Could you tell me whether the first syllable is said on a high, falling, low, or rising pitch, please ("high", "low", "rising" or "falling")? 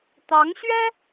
rising